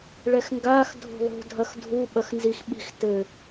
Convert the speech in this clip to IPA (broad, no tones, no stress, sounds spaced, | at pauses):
ɭ ɛ x ŋ ɡ a x dʱ o̤ lˠ o̤ dʱ ɐ x dʱ u ɓ ɐ x n z i x ɓ i̤ x t ɘ